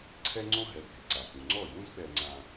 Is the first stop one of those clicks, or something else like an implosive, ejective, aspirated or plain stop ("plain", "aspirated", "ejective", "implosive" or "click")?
click